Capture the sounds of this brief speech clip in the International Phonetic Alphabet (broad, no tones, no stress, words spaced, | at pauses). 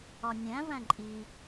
ɒnʲæ̃ væ̃ǃʼi